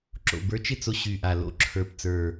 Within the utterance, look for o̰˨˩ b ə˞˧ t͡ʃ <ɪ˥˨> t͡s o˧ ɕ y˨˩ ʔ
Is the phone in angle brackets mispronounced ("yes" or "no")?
no